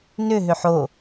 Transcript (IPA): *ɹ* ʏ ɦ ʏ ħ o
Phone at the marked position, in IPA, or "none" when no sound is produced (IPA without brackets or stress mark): n